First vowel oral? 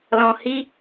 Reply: no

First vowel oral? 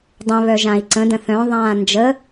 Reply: no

